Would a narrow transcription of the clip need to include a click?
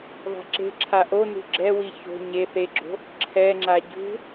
yes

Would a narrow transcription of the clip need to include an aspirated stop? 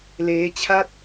yes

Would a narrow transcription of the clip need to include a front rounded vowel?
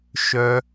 yes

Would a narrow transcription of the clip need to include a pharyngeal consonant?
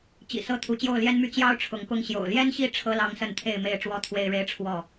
no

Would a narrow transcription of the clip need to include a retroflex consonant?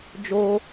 no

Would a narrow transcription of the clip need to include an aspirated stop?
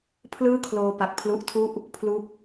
yes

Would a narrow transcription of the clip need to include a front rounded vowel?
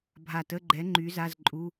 yes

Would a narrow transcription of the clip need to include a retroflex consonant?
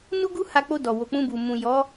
no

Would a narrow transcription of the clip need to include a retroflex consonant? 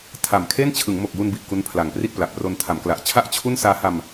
no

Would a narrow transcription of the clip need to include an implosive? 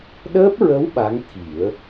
yes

